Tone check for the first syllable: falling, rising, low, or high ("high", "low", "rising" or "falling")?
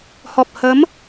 low